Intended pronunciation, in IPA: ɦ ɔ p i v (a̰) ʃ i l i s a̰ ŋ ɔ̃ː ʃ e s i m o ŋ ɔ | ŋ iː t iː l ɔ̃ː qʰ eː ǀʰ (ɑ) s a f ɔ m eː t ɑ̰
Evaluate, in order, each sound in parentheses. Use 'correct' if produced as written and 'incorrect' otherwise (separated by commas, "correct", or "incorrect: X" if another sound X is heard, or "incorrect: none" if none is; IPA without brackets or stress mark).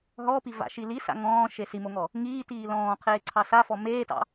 correct, correct